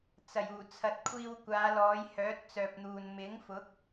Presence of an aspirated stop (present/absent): present